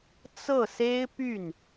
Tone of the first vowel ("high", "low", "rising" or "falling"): falling